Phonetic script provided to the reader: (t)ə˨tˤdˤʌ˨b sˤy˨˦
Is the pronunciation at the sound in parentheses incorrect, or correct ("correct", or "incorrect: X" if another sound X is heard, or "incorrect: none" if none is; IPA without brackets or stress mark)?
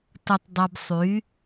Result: correct